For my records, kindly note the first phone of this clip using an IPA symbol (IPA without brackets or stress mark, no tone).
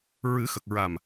ɹ